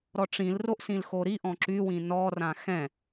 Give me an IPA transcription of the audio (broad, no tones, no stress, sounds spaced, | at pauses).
ɾ ɔ ʈ͡ʂ ĩ l r o ʔ s ĩ l x o ɾ i ʔ ɔ̃ ǁ y w ĩ n ɔ r ã x ɛ̃